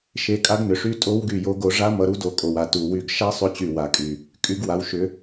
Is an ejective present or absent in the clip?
present